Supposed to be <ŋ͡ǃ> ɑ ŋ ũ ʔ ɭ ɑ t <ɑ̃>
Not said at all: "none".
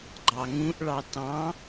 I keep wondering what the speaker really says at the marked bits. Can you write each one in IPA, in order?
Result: ɡ͡ǃ, ɑ̃

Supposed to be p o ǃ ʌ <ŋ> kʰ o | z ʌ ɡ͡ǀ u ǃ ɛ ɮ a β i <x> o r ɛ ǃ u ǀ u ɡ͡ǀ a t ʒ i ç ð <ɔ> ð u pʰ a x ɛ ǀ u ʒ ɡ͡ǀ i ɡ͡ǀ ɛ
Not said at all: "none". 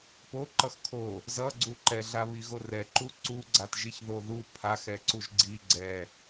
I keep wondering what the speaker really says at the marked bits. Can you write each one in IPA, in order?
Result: x, ɣ, o

